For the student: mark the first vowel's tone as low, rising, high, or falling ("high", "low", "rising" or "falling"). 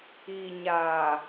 low